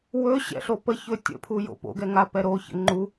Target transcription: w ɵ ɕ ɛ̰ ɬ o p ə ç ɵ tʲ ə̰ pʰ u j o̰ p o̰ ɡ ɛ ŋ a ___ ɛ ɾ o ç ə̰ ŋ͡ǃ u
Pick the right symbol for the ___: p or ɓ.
p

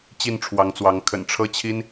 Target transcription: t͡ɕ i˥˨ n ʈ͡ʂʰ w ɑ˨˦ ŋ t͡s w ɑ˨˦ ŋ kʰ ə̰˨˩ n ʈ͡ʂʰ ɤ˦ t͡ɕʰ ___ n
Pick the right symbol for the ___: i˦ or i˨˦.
i˦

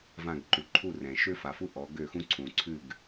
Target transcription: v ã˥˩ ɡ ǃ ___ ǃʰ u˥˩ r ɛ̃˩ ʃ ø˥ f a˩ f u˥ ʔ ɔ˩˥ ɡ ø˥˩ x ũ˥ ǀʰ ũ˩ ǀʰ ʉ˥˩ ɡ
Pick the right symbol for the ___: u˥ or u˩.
u˩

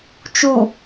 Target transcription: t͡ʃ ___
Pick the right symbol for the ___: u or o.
u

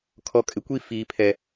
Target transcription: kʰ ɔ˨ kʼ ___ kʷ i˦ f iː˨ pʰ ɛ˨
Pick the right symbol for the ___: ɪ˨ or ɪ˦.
ɪ˨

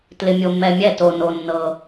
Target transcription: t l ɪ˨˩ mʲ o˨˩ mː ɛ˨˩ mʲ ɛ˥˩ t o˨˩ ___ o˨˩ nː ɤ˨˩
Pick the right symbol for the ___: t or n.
n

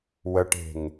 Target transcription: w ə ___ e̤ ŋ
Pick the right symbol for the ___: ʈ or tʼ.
ʈ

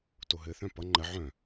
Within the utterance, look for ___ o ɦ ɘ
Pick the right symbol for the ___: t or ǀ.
t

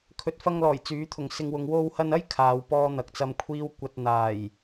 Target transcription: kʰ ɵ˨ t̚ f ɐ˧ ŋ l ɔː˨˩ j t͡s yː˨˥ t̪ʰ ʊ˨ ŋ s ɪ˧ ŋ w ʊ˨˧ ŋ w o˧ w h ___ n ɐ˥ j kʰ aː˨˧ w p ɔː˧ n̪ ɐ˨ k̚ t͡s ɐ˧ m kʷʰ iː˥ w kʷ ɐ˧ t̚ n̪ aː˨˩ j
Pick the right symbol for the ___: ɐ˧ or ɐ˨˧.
ɐ˧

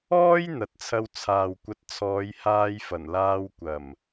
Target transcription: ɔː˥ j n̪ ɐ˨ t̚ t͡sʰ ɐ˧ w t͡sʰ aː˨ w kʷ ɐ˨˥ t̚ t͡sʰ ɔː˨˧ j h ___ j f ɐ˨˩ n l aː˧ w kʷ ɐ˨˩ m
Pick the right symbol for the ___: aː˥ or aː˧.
aː˧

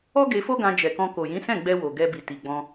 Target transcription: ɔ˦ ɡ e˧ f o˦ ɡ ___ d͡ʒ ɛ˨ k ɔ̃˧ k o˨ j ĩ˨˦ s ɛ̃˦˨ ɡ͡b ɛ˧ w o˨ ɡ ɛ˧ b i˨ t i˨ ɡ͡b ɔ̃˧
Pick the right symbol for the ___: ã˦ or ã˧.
ã˧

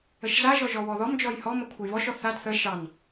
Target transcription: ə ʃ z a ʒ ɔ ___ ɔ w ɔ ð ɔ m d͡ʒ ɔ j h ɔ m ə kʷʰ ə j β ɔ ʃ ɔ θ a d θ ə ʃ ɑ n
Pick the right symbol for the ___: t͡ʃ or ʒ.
ʒ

